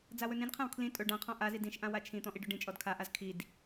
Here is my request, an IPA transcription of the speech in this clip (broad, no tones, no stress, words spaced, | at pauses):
d͡zawɵnĩdqʰãw kʰlĩ tʼɵ ɖãqʰɔ̃ ʔazi dĩʃʔã wat͡ʃʰĩ t̪ɔ̃ʔiɖɵɖĩ t͡ʃʼɔdkʰaʔaz kʰid